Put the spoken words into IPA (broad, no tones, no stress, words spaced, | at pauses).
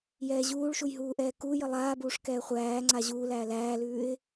jɛːʑuːɭʃuj ɦuːʔɛːkujə lˠaːbuːʂ kɛːχʷæːŋ͡ǀa ʑuːlæː læːlʉːɪ̯